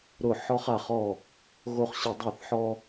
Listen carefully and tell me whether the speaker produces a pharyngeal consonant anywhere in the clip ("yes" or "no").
yes